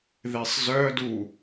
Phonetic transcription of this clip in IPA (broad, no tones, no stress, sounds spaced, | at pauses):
ð e sˤ z œ d u